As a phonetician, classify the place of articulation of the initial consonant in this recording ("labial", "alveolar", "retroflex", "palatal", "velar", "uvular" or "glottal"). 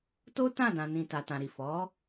alveolar